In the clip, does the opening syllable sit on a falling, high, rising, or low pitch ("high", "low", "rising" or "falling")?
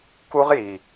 high